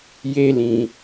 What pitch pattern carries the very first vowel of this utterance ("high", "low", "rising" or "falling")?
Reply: high